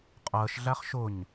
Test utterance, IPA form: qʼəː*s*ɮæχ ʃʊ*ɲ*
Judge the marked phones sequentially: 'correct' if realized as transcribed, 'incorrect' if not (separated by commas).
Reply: incorrect, correct